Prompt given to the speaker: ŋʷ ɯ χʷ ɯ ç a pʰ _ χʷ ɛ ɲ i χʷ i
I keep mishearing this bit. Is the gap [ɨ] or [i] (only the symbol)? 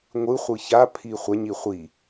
i